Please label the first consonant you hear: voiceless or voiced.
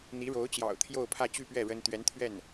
voiced